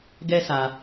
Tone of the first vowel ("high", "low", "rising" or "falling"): high